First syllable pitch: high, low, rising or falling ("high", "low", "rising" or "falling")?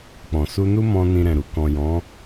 low